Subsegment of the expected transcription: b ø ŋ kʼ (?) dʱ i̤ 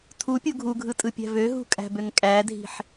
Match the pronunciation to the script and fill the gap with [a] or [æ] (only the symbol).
æ